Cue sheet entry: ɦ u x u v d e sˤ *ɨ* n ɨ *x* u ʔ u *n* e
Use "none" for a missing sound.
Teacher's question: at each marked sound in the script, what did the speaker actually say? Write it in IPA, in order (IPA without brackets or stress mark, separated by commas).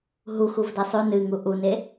y, ŋ, n